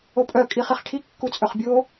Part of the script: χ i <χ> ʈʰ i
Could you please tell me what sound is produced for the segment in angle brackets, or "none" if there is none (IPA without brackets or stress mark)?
χ